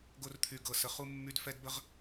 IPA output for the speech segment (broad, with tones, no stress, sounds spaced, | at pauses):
ɡ o˥ r t̪ʰ y˦˨ ɡ ɤ˦˨ s ə˦˨ χ u˥ mː y˥ d f ɛ˥ d b ə˥ ʁ